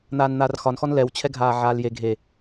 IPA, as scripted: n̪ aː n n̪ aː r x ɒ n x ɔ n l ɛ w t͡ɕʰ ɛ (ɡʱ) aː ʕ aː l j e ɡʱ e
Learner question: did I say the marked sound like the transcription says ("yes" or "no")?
yes